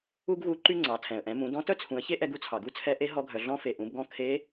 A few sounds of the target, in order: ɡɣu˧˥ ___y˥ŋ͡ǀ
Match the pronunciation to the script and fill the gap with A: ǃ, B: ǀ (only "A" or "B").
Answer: A